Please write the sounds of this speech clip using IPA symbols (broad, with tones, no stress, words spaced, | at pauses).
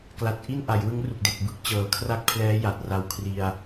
kla˨˩t̚ʔi˥˩n ʔa˩˦jwɯ˦˥ŋ ru˨˩k̚de˨˩k̚ bɯ˥˩k̚t͡ɕɤː˨˩kʰra˥˩k̚pʰlɛː˦˥ ja˨˩t̚ra˧w kʰri˧a̯